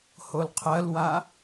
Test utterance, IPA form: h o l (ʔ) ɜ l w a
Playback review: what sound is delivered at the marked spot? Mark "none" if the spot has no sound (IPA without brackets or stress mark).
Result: qʰ